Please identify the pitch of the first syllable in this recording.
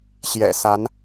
low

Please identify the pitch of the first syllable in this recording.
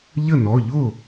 falling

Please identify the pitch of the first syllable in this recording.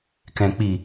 low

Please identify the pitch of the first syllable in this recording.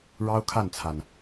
high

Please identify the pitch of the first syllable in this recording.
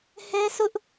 high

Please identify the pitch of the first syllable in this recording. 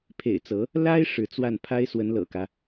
low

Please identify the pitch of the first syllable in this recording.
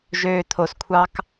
low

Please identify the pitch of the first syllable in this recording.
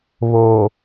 low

